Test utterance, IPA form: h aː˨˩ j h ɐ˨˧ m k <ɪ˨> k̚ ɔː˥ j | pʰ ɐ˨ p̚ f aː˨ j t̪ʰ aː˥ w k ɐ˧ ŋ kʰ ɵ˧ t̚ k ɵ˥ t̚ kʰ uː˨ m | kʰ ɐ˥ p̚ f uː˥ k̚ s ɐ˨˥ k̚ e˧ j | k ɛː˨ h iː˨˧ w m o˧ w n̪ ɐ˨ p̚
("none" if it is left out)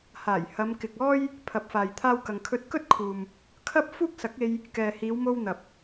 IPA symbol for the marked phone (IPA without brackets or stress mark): ɪ˨